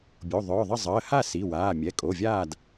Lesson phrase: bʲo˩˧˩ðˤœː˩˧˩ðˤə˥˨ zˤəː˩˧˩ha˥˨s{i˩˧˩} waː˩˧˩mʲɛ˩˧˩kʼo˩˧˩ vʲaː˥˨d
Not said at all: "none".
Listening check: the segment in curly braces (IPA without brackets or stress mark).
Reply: i˩˧˩